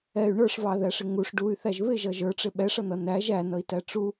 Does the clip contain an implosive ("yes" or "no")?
yes